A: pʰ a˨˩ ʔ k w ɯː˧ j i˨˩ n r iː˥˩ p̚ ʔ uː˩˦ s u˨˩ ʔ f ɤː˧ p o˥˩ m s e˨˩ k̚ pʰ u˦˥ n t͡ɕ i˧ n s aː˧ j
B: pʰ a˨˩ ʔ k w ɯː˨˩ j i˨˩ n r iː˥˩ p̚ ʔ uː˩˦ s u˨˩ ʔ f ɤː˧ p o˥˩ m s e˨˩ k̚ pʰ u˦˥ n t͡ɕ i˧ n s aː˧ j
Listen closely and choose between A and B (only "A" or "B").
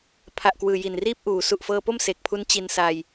B